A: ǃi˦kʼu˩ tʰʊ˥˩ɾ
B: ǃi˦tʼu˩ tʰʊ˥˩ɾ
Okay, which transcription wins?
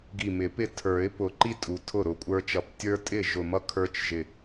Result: B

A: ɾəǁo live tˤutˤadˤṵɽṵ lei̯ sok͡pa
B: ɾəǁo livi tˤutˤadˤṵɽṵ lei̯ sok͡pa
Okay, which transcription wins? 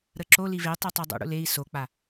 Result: A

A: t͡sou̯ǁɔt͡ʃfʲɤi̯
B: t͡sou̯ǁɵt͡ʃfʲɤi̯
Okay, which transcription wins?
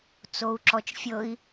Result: A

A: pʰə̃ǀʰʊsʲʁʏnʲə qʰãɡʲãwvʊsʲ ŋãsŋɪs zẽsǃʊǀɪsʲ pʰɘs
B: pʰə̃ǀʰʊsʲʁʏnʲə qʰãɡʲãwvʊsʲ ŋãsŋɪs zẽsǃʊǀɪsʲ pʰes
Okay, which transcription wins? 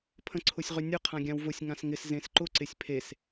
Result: B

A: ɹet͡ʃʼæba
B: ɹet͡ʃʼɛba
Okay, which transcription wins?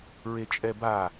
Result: B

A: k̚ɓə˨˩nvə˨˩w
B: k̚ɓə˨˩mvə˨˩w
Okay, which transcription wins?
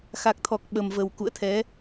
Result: B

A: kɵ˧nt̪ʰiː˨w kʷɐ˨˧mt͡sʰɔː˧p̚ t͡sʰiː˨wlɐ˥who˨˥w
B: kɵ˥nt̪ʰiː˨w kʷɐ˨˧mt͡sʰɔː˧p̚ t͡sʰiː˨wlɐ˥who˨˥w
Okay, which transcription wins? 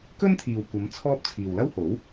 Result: B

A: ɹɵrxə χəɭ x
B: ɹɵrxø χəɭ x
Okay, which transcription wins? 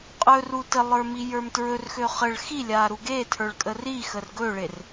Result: B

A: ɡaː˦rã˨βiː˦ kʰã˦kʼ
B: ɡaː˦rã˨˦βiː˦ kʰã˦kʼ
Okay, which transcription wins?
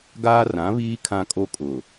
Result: B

